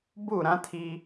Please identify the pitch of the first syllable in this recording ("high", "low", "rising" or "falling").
falling